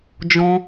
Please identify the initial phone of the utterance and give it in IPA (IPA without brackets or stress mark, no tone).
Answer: d͡ʒ